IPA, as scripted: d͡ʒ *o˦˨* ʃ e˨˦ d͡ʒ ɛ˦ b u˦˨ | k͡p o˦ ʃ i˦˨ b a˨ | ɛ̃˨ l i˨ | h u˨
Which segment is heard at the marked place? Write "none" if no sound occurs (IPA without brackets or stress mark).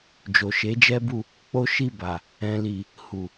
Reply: o˨